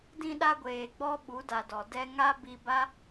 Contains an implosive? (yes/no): yes